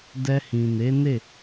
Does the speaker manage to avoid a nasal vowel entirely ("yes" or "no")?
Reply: no